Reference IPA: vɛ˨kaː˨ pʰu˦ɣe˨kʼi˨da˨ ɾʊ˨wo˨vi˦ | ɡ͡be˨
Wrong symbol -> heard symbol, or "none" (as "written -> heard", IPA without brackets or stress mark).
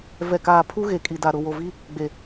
none